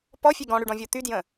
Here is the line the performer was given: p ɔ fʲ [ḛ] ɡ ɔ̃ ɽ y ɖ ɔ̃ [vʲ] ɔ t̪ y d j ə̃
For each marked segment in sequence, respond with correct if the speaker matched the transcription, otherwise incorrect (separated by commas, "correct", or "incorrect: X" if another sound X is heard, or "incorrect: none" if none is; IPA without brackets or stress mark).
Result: incorrect: e, correct